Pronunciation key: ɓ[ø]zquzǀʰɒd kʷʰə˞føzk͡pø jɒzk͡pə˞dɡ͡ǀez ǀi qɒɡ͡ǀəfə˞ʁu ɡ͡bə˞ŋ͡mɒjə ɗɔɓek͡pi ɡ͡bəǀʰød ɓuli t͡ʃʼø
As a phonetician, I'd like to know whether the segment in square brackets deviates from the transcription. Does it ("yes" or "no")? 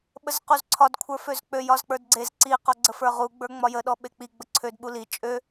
yes